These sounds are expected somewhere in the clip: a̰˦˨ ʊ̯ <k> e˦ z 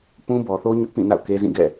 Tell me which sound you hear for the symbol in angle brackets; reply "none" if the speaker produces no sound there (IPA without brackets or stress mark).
k